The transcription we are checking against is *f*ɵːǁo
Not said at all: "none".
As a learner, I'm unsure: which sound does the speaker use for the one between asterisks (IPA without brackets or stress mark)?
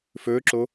f